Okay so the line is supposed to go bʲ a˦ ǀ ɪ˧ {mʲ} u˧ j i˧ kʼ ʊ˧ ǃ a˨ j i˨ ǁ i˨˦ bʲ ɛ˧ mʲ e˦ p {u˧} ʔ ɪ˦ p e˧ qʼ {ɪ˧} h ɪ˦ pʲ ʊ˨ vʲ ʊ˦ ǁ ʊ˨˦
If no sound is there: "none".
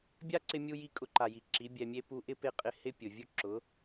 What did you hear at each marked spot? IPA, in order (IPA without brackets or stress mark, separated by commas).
mʲ, u˧, ɪ˧